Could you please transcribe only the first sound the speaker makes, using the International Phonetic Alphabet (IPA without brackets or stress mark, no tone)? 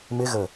m